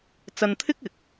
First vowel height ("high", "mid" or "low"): low